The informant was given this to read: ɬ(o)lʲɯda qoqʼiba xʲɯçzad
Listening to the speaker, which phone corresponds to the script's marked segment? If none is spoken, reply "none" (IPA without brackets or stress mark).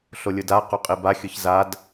o